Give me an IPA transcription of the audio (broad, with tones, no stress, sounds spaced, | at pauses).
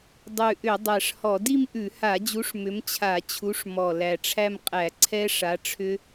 dˤ ʉ˨˩ ʔ ʏ˧˩˧ dˤ æ˨˩ ʂ h ɔ˧˩˧ d i˥˧ m ʔ ʉ˧˩˧ h a˧˩˧ d͡ʑ u˨˥ ʂ m ʏ˨˥ m t͡ɕʰ a˧˩˧ t͡ɕʰ u˨˥ ʂ m ɔ˨˩ l æ˨˩ ʈ͡ʂʰ æ˥˧ m qʼ æ˧˩˧ ǀʰ ɛ˦˥ ʂ a˨˥ ʈ͡ʂʰ ʏ˦˥